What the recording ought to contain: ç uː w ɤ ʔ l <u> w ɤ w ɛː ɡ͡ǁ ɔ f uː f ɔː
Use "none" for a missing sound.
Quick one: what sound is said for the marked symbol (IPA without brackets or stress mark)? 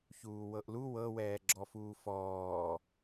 u